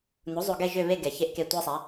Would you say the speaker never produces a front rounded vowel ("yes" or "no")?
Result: no